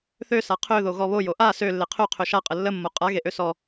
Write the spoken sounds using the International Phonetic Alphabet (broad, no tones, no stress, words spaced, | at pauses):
θøsa qʰøðo ɣɔβo joʔa sø lːeqʰø qʰøʃaqʼə lːə mːoqʼa ɣeʔøsɔ